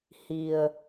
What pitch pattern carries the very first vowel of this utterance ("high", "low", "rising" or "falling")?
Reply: low